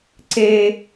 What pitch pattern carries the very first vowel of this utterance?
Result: high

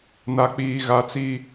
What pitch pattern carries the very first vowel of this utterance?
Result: low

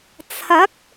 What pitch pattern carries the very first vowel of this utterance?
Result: rising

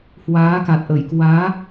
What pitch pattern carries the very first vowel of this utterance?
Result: rising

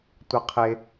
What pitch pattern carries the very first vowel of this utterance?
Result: low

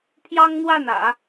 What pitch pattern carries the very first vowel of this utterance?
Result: high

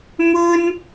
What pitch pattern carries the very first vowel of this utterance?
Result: high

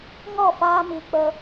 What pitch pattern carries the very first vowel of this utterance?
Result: falling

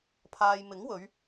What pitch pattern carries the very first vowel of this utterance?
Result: low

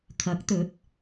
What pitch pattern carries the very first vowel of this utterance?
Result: rising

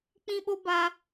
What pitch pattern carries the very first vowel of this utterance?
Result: high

